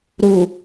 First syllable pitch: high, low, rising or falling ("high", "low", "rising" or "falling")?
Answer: low